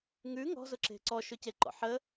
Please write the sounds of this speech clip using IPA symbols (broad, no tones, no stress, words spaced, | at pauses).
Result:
ŋʉ ŋɔ̤ zʊǁe̤ǀɔ ʃɵceǃɔ̰ħə